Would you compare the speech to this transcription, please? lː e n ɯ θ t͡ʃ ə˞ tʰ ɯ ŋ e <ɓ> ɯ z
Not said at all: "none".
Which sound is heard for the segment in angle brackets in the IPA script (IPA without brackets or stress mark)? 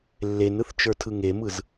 m